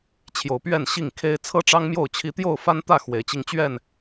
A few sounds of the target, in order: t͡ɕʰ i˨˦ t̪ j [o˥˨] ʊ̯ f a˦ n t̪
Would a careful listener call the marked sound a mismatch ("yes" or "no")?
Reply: no